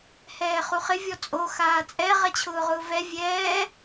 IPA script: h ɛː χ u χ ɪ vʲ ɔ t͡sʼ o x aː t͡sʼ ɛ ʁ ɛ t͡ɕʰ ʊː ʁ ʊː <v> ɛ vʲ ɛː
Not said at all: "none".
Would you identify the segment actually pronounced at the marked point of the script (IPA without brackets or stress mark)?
v